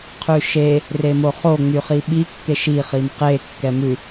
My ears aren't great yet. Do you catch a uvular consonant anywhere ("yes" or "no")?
yes